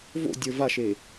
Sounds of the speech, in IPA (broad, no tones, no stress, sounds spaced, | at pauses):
v o̰ dʲ ə˞ v a ʃ e